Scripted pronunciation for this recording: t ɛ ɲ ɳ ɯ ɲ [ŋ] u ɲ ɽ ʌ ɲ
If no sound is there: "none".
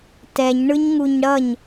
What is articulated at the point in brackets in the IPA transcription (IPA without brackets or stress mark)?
ŋ